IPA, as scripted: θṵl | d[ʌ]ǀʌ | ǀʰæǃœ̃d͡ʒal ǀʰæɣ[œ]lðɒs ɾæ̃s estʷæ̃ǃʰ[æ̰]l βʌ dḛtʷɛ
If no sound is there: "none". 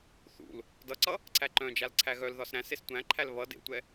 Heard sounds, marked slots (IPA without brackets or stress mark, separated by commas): ʌ, œ, æ